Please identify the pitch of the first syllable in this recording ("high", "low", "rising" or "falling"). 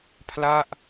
falling